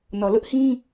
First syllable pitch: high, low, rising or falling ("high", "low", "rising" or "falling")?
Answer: low